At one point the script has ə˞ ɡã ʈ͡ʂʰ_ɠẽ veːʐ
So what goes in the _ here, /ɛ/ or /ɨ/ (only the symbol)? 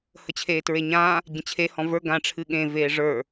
ɨ